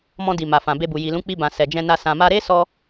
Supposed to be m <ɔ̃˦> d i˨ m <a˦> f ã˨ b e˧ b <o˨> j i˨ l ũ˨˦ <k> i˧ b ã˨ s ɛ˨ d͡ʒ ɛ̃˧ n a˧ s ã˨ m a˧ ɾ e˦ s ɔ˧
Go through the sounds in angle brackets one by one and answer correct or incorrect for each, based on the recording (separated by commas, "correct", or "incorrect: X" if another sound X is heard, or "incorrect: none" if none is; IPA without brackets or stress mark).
incorrect: ɔ̃˧, incorrect: a˨, incorrect: u˨, incorrect: k͡p